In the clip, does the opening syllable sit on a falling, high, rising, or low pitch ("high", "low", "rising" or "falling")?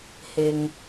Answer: low